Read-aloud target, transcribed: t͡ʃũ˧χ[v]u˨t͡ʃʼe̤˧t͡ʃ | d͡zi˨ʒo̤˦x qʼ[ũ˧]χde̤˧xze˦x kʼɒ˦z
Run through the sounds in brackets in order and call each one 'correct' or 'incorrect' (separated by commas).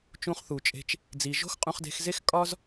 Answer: incorrect, correct